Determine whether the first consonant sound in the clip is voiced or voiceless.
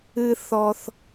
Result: voiceless